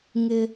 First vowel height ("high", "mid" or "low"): high